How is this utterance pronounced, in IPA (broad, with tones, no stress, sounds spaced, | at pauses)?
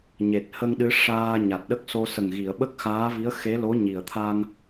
ɲ e˨˩ t̚ h ə˧ ŋ ɗ ɨ˧˥ ʂ aː˧ ɲ a˨˩ t̚ ɗ ə˦˥ k̚ s o˧ s ə˨˩ ŋ ɣ i˨˩˨ ə̯ ɓ ə˦˥ k̚ x aː˧˥ v i˧˥ ə̯ x e˧˥ l o˧˥ ɲ i˨˩ ə̯ t̪ʰ a˧ ŋ